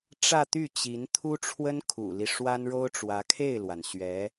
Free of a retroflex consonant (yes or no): no